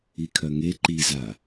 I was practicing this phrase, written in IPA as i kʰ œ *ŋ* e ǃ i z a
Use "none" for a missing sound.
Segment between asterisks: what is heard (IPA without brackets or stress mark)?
ŋ